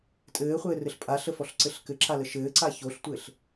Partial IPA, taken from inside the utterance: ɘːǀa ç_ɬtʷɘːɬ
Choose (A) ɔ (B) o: B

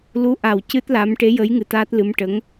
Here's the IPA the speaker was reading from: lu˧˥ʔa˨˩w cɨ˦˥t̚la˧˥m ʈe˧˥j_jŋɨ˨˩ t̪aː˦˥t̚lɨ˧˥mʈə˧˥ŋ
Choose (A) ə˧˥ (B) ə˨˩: A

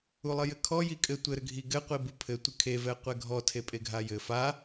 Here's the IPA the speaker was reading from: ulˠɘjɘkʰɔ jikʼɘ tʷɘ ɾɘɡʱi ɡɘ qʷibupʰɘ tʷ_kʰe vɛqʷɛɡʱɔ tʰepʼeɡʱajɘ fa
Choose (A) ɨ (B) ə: A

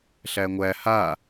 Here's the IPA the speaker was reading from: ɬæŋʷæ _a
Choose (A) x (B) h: B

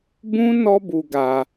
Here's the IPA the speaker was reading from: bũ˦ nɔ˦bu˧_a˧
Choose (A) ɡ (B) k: A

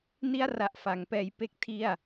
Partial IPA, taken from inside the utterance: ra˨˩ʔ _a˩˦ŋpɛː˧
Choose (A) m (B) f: B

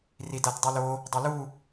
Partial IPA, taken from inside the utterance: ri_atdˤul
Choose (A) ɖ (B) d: B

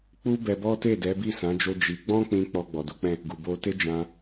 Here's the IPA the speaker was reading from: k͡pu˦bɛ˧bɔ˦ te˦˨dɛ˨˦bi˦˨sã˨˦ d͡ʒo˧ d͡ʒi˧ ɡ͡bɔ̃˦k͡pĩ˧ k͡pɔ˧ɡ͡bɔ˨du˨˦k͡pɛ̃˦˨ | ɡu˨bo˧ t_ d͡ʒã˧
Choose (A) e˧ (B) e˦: B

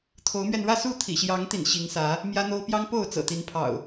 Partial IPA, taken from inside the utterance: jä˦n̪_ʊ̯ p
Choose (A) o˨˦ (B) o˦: B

